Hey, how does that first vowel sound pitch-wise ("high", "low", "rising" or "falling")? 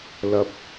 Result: low